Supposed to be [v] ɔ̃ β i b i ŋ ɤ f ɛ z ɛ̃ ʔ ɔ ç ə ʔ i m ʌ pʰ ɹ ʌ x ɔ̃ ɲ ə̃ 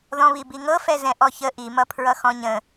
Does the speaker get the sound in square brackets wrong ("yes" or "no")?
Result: yes